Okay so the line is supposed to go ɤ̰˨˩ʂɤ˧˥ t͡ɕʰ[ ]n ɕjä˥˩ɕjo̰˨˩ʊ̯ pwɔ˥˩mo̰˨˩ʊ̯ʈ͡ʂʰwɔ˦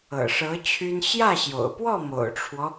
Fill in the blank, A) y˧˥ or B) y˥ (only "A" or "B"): B